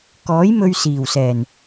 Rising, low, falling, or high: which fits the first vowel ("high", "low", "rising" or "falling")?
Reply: rising